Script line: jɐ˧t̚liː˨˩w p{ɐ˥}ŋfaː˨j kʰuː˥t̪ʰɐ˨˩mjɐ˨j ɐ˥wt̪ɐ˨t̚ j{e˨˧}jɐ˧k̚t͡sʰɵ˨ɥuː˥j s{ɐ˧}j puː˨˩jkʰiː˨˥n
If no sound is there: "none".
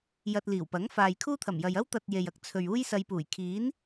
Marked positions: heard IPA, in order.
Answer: ɐ˨˥, e˨, ɐ˧

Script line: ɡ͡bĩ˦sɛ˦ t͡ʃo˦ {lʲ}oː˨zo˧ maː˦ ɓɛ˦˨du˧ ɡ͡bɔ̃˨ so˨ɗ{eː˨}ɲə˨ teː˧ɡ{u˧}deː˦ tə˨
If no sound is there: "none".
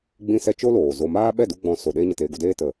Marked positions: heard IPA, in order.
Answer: l, eː˧, u˧

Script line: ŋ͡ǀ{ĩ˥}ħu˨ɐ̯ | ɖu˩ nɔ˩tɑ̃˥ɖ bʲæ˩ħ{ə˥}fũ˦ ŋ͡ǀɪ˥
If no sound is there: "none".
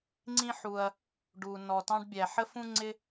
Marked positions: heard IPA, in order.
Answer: ĩ˥, ə˥

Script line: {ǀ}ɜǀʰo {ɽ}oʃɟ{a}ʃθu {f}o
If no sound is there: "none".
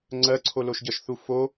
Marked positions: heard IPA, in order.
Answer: ŋ͡ǀ, l, ʌ, f

